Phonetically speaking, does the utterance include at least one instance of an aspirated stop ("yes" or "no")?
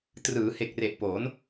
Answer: no